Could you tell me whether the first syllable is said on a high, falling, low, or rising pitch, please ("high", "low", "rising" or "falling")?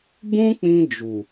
high